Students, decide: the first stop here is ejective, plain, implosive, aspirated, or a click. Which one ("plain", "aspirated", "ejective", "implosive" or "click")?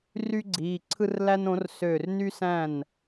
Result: click